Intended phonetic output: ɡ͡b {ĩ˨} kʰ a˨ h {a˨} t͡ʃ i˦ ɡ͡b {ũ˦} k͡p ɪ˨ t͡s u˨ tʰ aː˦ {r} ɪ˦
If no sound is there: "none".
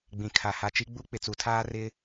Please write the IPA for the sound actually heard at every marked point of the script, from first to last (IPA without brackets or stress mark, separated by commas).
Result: ĩ˨, a˨, u˦, r